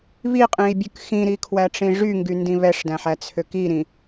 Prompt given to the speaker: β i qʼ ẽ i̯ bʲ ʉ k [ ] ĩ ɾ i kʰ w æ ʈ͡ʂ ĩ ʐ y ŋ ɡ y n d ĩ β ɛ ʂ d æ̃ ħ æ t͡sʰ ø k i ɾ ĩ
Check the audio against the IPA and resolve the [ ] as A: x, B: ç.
A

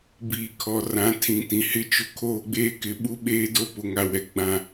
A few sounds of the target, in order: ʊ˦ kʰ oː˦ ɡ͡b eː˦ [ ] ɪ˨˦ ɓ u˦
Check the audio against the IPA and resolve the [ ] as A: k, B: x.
A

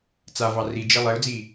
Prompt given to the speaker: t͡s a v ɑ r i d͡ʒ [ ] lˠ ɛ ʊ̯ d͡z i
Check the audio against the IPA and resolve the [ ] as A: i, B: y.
A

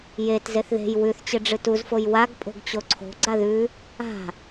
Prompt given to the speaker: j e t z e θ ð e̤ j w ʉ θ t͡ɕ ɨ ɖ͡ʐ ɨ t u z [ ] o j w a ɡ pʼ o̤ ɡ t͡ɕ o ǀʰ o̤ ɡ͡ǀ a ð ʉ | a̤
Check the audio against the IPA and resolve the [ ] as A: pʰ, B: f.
B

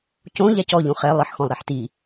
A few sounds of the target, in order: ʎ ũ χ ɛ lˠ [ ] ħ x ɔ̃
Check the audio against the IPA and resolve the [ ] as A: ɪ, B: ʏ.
A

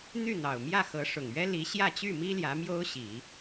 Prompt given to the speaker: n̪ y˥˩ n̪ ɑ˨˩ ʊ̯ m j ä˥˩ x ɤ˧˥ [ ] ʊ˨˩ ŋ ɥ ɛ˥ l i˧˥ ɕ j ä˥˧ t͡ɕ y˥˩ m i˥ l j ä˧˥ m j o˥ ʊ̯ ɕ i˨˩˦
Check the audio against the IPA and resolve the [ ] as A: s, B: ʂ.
B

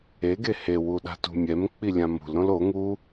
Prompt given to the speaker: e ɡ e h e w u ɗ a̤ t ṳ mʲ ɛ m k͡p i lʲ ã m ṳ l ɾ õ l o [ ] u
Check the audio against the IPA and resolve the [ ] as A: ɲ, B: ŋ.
B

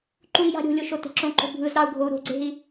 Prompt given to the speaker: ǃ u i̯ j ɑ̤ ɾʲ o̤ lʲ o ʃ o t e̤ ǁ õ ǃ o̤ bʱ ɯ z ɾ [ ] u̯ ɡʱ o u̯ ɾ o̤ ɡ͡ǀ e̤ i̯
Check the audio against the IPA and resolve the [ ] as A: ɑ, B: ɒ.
A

